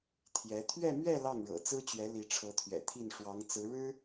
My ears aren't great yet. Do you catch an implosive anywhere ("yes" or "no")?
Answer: no